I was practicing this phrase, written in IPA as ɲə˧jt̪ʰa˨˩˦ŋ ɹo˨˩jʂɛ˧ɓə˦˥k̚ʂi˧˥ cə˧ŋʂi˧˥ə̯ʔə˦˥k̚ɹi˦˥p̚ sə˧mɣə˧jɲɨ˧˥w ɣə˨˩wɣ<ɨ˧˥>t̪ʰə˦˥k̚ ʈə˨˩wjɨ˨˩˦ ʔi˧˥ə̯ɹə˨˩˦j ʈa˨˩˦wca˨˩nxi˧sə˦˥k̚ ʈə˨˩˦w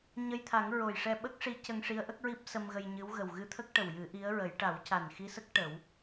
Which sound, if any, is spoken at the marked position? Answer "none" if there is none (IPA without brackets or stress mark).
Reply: ɨ˧˥